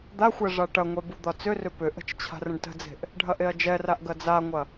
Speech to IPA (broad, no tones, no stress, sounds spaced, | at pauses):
d̪ a xʷ ɛ ʐ a ʈ ɐ ŋʷ ɛ b u d̪ ɒ t͡s ʏ r ʏ p ʏ ʔ ə̤ t͡ʃ t͡ɕʰ a̤ r ə̃ ɖ t ə̤ d͡z e̤ ʔ | ɖʱ ɐ ʔ e ɐ̯ d͡ʒ ɛ r a ʔ ɡ ɐ d͡z a ŋʷ ɐ